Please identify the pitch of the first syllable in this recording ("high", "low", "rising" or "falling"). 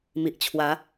low